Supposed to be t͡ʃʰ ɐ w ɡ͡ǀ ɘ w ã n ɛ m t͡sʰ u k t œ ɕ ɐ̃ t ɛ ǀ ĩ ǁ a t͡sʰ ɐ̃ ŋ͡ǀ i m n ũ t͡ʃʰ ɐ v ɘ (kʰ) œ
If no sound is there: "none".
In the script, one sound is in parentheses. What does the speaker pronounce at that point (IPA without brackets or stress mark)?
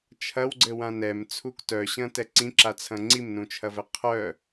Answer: qʰ